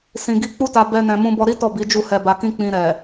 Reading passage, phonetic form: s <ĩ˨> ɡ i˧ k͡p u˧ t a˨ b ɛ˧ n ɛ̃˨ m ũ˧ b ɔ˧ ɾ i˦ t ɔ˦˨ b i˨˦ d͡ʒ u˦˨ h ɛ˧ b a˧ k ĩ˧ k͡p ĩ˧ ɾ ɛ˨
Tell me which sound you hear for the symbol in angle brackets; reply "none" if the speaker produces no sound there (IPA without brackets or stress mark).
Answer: ĩ˨